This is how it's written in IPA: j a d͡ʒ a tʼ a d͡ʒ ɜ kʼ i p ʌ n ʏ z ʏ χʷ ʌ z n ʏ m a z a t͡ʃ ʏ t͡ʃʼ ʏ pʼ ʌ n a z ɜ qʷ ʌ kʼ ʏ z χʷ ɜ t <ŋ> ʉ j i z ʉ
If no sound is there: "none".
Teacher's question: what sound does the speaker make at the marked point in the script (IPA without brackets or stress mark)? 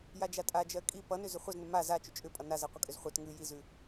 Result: ŋ